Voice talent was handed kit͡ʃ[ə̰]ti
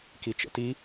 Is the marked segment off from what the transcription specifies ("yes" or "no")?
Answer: no